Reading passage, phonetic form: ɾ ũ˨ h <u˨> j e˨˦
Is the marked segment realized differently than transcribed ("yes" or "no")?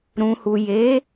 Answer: no